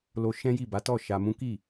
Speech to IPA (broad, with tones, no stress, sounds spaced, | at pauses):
l o˧ ʃ ɛ̃˦ j i˦˨ b a˨˦ t ɔ˦˨ ʃ a˧ m ũ˦ k i˦˨